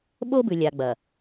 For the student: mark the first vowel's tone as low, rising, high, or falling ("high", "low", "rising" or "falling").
high